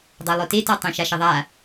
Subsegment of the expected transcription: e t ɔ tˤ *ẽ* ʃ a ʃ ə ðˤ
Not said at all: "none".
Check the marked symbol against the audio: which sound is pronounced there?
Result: ẽ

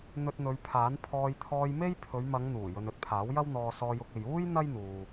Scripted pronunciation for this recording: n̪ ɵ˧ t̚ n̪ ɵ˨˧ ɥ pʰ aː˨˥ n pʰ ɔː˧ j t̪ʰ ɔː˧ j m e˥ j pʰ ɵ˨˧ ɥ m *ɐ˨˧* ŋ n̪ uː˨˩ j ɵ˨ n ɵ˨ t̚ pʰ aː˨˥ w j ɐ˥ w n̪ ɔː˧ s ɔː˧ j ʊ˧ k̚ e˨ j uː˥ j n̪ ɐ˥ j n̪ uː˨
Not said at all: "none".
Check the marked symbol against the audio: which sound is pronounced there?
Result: ɐ˨˧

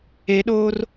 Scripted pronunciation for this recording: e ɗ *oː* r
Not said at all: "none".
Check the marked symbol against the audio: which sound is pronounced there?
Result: oː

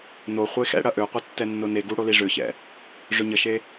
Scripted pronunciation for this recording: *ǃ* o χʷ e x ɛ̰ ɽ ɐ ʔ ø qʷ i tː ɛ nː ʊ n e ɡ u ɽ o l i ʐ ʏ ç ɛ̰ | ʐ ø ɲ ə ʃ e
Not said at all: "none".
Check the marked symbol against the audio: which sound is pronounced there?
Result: n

